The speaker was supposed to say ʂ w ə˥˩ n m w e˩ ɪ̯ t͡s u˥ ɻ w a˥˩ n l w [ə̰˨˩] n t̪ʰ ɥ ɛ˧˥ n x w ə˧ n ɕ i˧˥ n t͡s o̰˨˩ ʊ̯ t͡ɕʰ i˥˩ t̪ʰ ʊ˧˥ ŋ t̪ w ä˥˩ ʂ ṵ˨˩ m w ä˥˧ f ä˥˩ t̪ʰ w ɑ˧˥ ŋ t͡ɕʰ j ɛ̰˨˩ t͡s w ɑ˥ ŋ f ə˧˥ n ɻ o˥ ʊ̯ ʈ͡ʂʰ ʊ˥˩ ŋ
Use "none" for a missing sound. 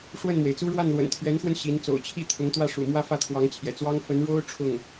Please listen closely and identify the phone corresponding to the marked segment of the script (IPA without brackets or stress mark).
ə̰˨˩